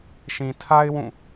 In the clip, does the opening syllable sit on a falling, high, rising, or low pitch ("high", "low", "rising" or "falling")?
low